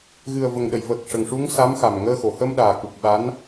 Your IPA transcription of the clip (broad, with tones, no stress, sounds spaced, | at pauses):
ɣ ɨ˨˩ ə̯ v ə˨˩ ŋ ɗ ə˨˩˨ j v əː˨˩ k̚ ʂ ə˨˩ ŋ ʂ u˧˥ ŋ s a˧˥ m x a˨˩ m ŋ əː˧ x o˨˩˨ h ə˧ m ɗ aː˨˩ k u˨˩ k̚ ɓ a˧˥ n